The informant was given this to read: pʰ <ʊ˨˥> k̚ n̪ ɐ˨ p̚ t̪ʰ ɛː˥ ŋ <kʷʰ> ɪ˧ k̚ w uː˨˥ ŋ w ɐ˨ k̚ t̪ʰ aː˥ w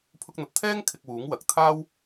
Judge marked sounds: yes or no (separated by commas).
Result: no, no